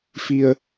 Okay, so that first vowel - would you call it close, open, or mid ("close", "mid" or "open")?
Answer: close